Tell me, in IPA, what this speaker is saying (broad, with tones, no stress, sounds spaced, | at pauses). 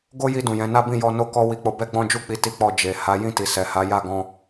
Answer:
ɡ o˦ j i˧ d ũ˨ j ɛ̃˨˦ n a˦ b ĩ˦˨ j ɔ˧ n o˦ k ɔ˦ w i˧ k͡p o˧ b ɛ˦ ɡ͡b ɔ̃˦ d͡ʒ u˦ k͡p i˧ t i˦ k͡p ɔ˦˨ d͡ʒ e˨ h a˨˦ j ĩ˦˨ t i˨ s ɛ˨ h a˨˦ j a˦˨ ɡ ɔ̃˧